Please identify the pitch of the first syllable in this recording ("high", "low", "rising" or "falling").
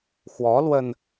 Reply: rising